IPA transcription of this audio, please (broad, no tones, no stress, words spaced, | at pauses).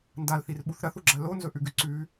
ndalθirɓuθ ɾɐθuɡ͡ǁa lonzɵʔʉɡʉ ǀʉ